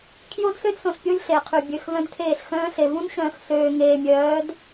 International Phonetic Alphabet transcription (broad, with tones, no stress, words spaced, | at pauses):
kʰjo˦dsø˦dsõ˨ɬpʲo˦lʲ ɬe˨qʰy˨bʲø˨˦xvœ̃˦d kʰeː˦˨ɬxœ̃ː˦ɬe˨ vũ˦nɕœ̃ː˨x søː˨ŋeː˨mʲœː˨˦d